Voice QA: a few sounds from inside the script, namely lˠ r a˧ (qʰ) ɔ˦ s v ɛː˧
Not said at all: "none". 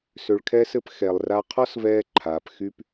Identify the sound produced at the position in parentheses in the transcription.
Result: qʰ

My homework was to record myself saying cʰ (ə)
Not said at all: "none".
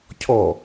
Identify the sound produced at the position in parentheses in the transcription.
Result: ɔ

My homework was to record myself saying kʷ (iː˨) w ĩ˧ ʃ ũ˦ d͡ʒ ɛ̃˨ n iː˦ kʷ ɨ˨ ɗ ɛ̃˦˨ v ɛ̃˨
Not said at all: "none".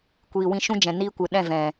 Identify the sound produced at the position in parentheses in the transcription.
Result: iː˨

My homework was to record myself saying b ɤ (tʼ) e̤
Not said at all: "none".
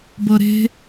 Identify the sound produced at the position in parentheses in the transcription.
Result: ɾ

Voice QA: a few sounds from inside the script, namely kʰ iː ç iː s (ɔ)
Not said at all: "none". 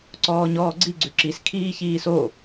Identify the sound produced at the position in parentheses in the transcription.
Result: o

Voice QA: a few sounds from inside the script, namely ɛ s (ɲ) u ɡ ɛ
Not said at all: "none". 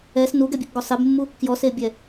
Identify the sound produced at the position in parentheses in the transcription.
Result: n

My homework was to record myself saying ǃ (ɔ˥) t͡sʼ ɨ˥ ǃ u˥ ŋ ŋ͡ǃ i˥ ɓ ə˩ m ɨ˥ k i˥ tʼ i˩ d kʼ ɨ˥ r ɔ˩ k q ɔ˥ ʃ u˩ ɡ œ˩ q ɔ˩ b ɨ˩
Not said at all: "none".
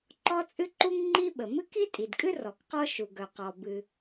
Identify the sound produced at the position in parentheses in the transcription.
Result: ɔ˥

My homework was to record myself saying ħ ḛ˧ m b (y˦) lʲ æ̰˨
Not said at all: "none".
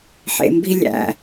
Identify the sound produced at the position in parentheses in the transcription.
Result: i˦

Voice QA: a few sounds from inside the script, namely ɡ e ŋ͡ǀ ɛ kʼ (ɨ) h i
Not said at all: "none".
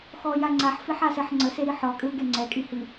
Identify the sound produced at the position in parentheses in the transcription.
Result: i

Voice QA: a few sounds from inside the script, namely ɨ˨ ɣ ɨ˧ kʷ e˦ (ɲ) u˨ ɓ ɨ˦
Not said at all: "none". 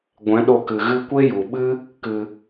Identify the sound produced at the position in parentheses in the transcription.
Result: j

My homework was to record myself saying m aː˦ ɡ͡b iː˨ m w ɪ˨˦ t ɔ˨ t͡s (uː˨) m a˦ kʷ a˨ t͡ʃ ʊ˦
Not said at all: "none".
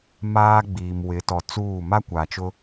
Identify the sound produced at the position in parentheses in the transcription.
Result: uː˦˨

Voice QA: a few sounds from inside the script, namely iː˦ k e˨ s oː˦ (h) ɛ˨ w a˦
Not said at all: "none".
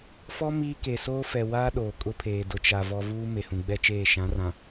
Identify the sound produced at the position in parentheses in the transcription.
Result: f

